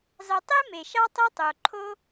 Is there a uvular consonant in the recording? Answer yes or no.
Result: no